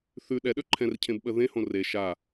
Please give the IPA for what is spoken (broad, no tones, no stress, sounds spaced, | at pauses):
θ ʉ ɗ ɛ ɗ ø ǃʰ ɛ̃ r cʰ ẽ b ɓ ə ð ẽ h õ r e ʃ a